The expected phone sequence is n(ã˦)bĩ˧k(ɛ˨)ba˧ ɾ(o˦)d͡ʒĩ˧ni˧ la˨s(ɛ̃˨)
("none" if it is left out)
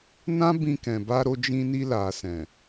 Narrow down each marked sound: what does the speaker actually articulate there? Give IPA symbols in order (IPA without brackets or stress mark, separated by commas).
ã˦, ɛ̃˨, o˧, ɛ̃˨